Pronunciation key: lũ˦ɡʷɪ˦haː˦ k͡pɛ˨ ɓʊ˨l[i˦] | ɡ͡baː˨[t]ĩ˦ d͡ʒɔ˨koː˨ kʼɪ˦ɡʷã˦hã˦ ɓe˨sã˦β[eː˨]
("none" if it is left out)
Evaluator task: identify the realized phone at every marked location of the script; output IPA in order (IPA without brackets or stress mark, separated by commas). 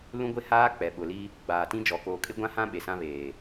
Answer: i˦, t, eː˨